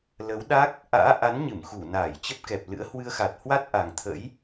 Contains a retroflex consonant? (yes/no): no